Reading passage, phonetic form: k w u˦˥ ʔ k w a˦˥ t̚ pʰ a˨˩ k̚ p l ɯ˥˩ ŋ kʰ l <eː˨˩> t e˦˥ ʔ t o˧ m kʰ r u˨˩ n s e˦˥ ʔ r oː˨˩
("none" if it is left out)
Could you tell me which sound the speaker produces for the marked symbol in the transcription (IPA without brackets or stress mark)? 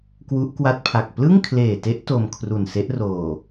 eː˨˩